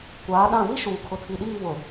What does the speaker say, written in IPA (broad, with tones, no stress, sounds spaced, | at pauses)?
kʷ aː˨˦ ɗ ã˦˨ v i˦ ʃ uː˨ kʰ ʊ˨ tʰ i˨ ɗ iː˦˨ β ʊ˨